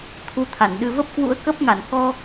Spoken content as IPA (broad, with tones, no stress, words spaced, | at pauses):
t̪ʰu˧t̪ʰa˧˩nɗɨ˧ və˦˥p̚kwṵ˧˥ə̯kə˦˥p̚ŋa˧˩n kɔ˧